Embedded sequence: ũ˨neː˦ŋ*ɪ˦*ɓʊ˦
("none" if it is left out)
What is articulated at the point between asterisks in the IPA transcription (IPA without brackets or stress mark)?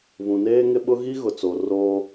ɪ˦